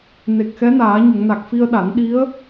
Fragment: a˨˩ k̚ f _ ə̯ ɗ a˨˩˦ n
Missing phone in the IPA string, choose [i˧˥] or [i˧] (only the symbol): i˧